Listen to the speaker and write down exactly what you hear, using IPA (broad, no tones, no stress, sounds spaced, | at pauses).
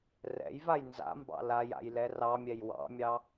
r ɛ̰ j v a j n z a̰ m b ɑ̰ l a j a̰ j l ɛ r ɑ mʲ ɛ j w ɑ̰ mʲ ɑ